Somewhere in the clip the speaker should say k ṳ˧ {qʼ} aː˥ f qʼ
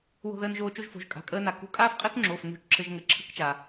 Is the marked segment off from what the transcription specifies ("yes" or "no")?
yes